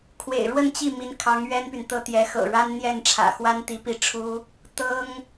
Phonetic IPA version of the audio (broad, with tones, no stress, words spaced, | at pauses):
kʰwḛ˨˩ɪ̯ɻwə˥˧nt͡ɕi˥˩ mi˧˥nkʰɑ˧˥ŋ ɥɛ˥npy˨nt̪ɤ˥ t̪jɛ˧˥xɤ̰˨˩ ɻa˥nn̪jɛ˥˩n ʈ͡ʂʰä̰˨˩xwa˥nt̪i˧˥ pi˥˩ʈ͡ʂʰu˥ | t̪ɤ˥ŋ